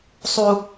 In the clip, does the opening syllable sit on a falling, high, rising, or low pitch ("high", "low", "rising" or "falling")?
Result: high